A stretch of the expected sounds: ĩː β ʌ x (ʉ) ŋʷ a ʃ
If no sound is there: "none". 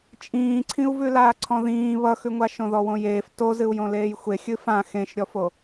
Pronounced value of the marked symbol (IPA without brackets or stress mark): ʉ